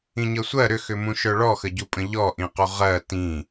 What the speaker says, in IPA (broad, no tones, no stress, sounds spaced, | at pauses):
ĩ ɲ ɤ sʷ ɜ ɾ ʏ x ʏ m ũ ʃ œ ɭ ɔ x ə ɟ u pʼ ə̃ ʎ ɔ ʔ ĩ q u ʁ ɜ t ĩ